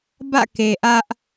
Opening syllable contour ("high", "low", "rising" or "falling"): falling